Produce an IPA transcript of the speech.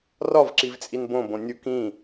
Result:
r ɒ v ǁ i v t͡sʼ i n b õ b õ nʲ u k ĩ

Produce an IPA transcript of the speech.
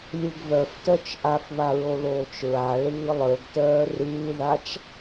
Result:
lʲ ɯ ɡ β œ f t œ t͡ʃ ʔ a f β a ɹ o l oː t͡ʃ ɹ a ɭ ɯː lˠ ə˞ ɡ t œː r ɯː ð a t͡ʃ

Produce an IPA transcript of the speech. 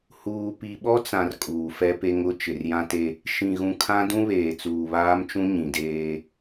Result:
h uː˨ p i˨ ɓ ɔ˦ t͡s ã˨ r kʼ uː˨ f ɛ˦ p e˦ ŋ ʊ˦ t͡ʃ ɪ˨ r j ã˦ t e˦ | ʃ ĩ˨ ɣ ũ˨ kʰ ã˦ d ũ˦ β eː˨ t͡s uː˨ β aː˦ m t͡ʃ ũ˦ ɲ ĩ˨ d eː˦

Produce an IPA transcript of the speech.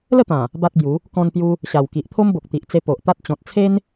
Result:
l ə˥˧ t̪ ã˨˩ | b a˦ t̚ b j u˨˦ | k ɔ̃˧ n p j u˧ | ɕ a˨˩ w k i˨ ʔ t̪ʰ o˦ m b o˨ k̚ t̪ i˨ ʔ t͡s e˧ p o˨ ʔ t̪ a˦ t̚ t͡ɕ ɔ̃˨ t̚ t͡sʰ e˦ n

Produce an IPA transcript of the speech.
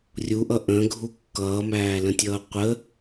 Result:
rʲ u ʔ ʌ ʔ ə̃ ɡʱ u kː ʌː m æː l ə̃ tʲ ʌː qʷ ə

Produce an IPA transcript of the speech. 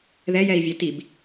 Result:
ð ɛ j ɛ i̯ vʲ ɛ t i b

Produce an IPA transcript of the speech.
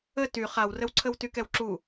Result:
ə t y χ a w r ə w ǀʰ ə w t y k ɛ w ǁ u

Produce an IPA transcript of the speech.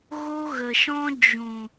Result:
ɣ o˦ ɣ ə˨ ʃ ɔ̃˦ d͡ʒ ũ˨

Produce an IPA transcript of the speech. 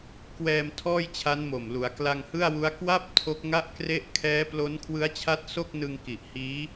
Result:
k w ɛː˧ m tʰ ɔː˥˩ j t͡ɕʰ a˦˥ n m o˨˩ m l u˩˦ a̯ k l a˧ ŋ h ɯ˥˩ a̯ w u˦˥ a̯ k w a˥˩ p̚ tʰ o˦˥ k̚ ŋ a˥˩ ʔ k r e˥˩ ʔ kʰ ɛː˦˥ p l o˦˥ n kʰ w ɯ˦˥ a̯ t͡ɕʰ a˦˥ t̚ s o˥˩ k̚ n ɯ˧ ŋ k i˨˩ ʔ h iː˦˥

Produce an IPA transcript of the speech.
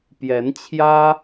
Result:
p j ɛ˨˦ n t͡ɕʰ j ä˦

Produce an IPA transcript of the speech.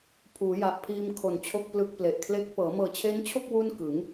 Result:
pʰ uː˩˦ j a˨˩ ʔ pʰ iː˧ m kʰ o˨˩ n t͡ɕʰ o˥˩ k̚ p l ɯ˦˥ k̚ p l e˨˩ ʔ kʰ l e˥˩ k̚ p ɤː˩˦ m ɤː˨˩ t͡ɕʰ e˦˥ n t͡ɕʰ o˥˩ k̚ w u˥˩ n k ɯ˩˦ ŋ

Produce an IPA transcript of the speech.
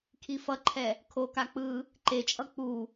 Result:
kʰ i f ʌ ǃʰ ɛ | kʰ o k a k͡p ɯ | ǃ e t͡ʃʼ ʌ k͡p u

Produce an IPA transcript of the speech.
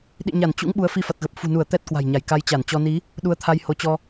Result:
ɗ ḭ˧˨ ɲ a˧˩ n t͡ɕ ṵ˧˥ ŋ ɓ u˨˦ ə̯ f i˧ f a˨˩ t̚ ɣ ə˨˩ p̚ f ṳ˨˩ n u˧˩ ə̯ t̪ ɛ˦˥ t̚ k w a̤˨˩ j ɲ a˧˩ j k a˧ j t͡ɕ a˧˩ n t͡ɕ ɔ˧ n i˨˦ | ɗ u˨˦ ə̯ t̪ʰ a˧ j h o˨˦ t͡ɕ ɔ˧

